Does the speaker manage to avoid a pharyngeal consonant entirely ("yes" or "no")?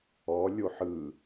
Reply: no